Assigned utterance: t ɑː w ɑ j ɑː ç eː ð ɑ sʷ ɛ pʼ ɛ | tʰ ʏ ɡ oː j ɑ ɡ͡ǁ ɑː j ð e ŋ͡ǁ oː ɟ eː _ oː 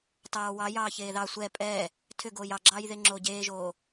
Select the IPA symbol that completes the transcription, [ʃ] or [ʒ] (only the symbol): ʒ